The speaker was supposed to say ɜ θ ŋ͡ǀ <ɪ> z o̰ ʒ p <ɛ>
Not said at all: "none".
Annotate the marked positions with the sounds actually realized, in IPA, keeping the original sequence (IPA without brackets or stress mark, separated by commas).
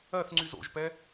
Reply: y, ɛ